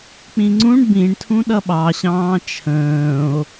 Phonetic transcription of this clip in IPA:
k͡p ĩ ŋ͡ǀ ũ ɳ b ĩ ɳ tʰ ũ ɗ ʌ ɓ ɑ ɕ ɑ̃ː t͡ʃʰ ə̃ː o̯

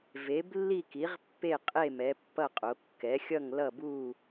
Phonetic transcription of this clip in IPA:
v e˩˥ b lː i˥˨ k i˩˥ ʁ pː e˥˨ qʼ e˥˨ m ɛ˩˥ pː ʌ˥˨ qʼ o˩˥ kː ɛ˩˥ xʲ ʌ˥˨ ŋ l ʌ˥˨ b u˥˨

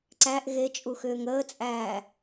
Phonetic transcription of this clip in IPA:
ǀ æ ʔ ɣ e t͡ʃʼ u x ʏː ŋ əː t͡sʼ æː

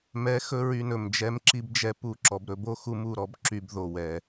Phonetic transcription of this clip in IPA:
m ɛ˨˦ x ɵ˧ ɹ y˧ n ɵ˨ m d͡ʒ ɛ˦ m ǁ i˦ b d͡ʒ ɛ˦ p u˦˨ ǁ ɔ˨ b ɾ ɵ˦ b o˦ x u˦ m u˦˨ ɾ ɔ˦ b ǁ y˧ b ð o˨ w ɛ˨

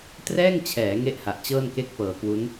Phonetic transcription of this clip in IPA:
t r ɛː˥˩ ŋ t͡ɕʰ ɛː˩˦ ŋ e˥˩ ʔ h a˨˩ ʔ t͡ɕ ɤː˥˩ n k e˥˩ k̚ p ɤː˨˩ k w u˦˥ n

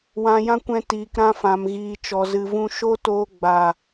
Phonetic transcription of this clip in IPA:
w ã˧ j ã˦ kʷ ɛ̃˧ t iː˨ k ɾ ã˧ f ã˨ m ɣ iː˨ t͡ʃ ɔ˨ z ɨ˨ v ũ˧ ʃ oː˦ t oː˧ ɡ͡b a˨

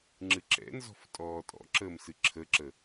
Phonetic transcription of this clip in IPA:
ŋ͡ǁ ɨ ǁ ɛ̰ n z ɔ̤ f tʼ ɔː tʼ ɔ̰ ǁ əː m s ɨ ǁʰ ə ǁ ə

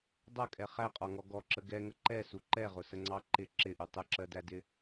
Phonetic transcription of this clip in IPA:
dˤ ʌ kʼ ɛ χ æ qʼ ɒ ŋ ɔ ɡ ɔ ǁ ə ɡ ɛ ŋ ə ǃ ɛ s u ǃ ɛ ʁ ʊ s ə ŋ͡ǀ ɑ ǃ ɪ ǁ ɪ ʔ u tˤ ə ǁ ɜ d æ d ɪ

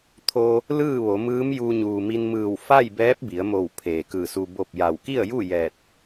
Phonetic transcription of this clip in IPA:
t̪ʰ o˧ | l ɯː˥˨ ʋ o˩˧ m ɯː˧˥ m j u˧ ɲ uː˩ m i˧ n m ɯː˧˩ w f a˥˨ j b ɛː˧˥ p̚ b i˩˧ ə̯ m o˧˩ w pʰ eː˩ k ɯː˧˩ s u˧ b o˥˨ p̚ j a˧˩ w k i˥˨ ə̯ j u˥˨ j ɛː˧˩ t̚

